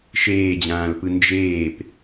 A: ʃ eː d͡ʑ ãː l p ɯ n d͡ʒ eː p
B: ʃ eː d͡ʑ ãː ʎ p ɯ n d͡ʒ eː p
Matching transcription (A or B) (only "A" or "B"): A